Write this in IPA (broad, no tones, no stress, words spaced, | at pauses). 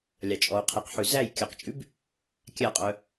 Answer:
lʲɑt͡ʃʼɔu̯qʰiqħʉ zæj kʲœqt͡ʃʼʉb | kʲæqʼœ